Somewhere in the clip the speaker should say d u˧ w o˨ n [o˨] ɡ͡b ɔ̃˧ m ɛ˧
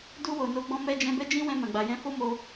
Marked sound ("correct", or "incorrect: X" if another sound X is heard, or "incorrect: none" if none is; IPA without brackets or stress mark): incorrect: o˨˦